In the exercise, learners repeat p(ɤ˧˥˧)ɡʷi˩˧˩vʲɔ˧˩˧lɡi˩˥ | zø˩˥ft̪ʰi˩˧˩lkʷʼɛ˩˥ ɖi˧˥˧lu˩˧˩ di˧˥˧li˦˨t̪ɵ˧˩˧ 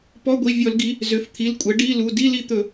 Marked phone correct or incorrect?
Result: incorrect